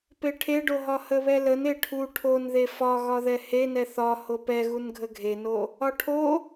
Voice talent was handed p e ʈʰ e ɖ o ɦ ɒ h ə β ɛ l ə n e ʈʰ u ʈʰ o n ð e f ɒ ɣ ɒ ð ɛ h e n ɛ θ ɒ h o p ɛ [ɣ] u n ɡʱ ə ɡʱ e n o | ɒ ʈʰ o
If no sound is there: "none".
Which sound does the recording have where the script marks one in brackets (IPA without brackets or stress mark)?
ɣ